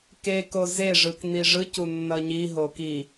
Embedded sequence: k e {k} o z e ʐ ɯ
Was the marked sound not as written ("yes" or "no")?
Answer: no